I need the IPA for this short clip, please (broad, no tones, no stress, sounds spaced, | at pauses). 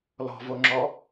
l ɔ̤ v o ŋ͡ǁ ɔ